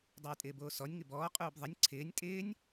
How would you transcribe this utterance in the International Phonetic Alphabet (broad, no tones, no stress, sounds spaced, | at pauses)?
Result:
dˤ o j tʼ ɪː b oː s ɔ nʲ ŋ ɪ b ɔː qʼ uː b ðˤ ə nʲ ǀʰ ɪː nʲ tʼ ɪː nʲ